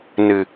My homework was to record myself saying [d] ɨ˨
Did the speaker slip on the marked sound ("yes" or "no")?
yes